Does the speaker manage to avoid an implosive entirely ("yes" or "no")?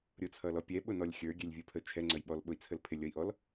no